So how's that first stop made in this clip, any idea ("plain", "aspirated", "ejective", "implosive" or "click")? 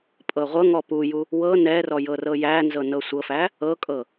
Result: ejective